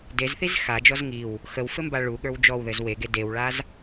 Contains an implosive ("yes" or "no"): yes